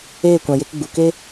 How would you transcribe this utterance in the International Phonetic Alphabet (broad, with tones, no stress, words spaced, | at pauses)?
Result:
eː˦˨kʷã˨je˧k ɡ͡bu˨ke˦